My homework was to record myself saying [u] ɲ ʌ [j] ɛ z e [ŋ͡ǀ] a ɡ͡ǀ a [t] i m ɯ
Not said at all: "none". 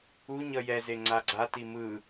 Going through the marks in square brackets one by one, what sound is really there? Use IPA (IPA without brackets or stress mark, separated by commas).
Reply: u, j, ŋ͡ǀ, t